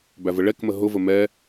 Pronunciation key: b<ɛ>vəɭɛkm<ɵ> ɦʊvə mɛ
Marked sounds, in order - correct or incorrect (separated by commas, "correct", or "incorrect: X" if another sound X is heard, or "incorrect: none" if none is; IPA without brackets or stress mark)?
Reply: incorrect: æ, incorrect: ə